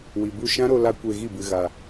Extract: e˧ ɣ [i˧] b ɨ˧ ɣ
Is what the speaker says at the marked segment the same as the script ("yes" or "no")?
no